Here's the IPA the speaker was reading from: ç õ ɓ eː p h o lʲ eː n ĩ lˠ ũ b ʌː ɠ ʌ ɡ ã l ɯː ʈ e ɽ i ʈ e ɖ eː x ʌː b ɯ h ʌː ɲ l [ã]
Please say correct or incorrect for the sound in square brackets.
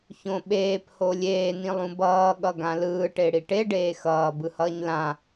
correct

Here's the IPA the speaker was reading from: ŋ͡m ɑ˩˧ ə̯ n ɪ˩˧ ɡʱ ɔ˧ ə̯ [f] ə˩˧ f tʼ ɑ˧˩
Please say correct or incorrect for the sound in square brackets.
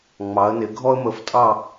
incorrect: m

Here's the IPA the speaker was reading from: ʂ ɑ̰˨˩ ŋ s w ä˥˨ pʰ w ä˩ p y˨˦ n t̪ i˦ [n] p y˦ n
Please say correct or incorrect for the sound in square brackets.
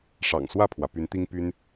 incorrect: ŋ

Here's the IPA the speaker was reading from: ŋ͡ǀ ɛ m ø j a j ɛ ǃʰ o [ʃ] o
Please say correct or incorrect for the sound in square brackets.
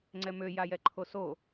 incorrect: s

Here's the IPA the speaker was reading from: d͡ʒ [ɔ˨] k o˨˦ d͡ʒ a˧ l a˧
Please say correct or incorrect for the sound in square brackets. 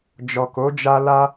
correct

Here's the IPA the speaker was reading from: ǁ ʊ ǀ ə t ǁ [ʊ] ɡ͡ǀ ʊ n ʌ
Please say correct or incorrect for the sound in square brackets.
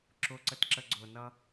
incorrect: ə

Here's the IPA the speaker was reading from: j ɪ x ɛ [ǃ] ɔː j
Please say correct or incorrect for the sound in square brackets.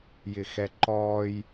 correct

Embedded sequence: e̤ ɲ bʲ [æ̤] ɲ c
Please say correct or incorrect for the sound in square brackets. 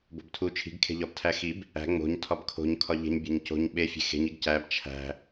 correct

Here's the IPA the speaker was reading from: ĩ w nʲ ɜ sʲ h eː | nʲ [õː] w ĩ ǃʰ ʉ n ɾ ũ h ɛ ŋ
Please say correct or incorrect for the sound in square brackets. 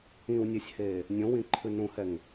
incorrect: õ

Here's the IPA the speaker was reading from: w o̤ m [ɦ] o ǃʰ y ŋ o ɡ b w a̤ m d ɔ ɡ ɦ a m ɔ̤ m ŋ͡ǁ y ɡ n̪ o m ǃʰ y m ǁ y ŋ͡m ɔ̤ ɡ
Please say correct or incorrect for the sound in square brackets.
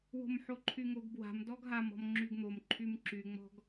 incorrect: ħ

